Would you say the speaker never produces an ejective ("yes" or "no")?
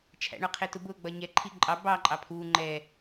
no